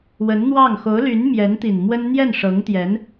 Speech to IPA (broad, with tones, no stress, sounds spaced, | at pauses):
w ə˧˥ n n̪ w ɑ˥˩ ŋ x o˧˥ ʊ̯ l y˧˥ n m j ɛ˧˥ n t̪ i˨˩ n m w ə˥ n n̪ j ɛ˥˩ n ʂ ɤ˧˥ ŋ t̪ j ɛ˧˥ n